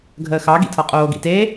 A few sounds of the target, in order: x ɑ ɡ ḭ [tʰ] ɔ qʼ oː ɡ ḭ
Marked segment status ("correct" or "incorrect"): correct